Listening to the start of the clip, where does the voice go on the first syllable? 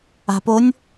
low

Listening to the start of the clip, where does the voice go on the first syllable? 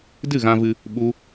falling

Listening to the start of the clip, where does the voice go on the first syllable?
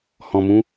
low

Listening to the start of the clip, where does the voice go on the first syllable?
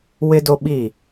high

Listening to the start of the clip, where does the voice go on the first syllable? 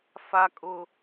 high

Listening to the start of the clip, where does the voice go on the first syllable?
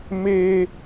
high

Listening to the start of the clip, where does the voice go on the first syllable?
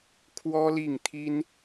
high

